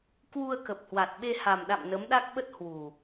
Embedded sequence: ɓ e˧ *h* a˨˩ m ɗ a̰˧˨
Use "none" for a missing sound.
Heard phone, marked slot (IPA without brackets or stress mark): h